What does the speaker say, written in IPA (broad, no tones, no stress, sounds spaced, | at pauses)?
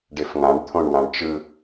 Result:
ɖ e f ŋ ã ɖ t̪ʰ õ ɳ w ã ɳ t͡ʃ ɯ